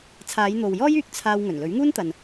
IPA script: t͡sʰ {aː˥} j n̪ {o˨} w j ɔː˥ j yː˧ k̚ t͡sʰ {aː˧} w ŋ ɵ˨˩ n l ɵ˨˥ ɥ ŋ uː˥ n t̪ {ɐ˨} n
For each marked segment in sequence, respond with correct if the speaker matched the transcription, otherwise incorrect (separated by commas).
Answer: incorrect, correct, correct, correct